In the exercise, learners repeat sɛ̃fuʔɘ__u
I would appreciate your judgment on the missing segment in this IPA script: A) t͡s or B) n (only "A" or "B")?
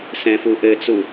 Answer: A